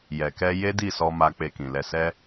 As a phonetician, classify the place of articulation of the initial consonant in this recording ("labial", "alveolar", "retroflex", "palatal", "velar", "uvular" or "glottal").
palatal